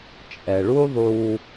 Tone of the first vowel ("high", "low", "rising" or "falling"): low